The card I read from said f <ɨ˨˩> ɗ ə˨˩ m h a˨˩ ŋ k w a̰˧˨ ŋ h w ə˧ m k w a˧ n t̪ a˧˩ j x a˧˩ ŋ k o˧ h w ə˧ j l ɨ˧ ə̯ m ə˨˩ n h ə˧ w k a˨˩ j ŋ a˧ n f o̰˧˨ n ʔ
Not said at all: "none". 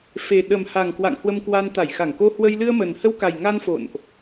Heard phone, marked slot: e˨˩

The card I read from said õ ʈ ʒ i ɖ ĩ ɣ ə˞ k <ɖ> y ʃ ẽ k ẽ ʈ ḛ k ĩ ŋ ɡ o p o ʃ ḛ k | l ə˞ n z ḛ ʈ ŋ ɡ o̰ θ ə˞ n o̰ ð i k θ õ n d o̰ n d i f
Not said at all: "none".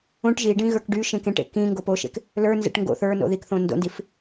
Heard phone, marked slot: ɖ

